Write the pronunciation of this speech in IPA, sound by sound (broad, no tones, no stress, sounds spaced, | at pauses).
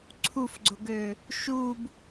ǀʰ u f ɡ͡ǀ ʊ ɡ ø | ʃ u b